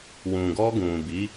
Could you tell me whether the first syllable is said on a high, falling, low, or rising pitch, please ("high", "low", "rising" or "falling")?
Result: low